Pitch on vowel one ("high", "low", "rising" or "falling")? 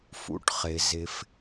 low